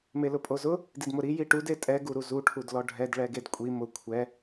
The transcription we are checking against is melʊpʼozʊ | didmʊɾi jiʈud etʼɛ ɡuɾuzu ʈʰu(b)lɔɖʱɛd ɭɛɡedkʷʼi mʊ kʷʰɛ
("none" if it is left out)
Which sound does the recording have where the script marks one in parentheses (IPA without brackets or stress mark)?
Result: d